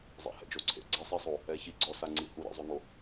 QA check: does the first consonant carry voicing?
yes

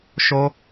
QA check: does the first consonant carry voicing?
no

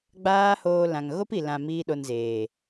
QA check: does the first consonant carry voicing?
yes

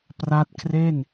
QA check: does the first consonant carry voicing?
no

